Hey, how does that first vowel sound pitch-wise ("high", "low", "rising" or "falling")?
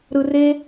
high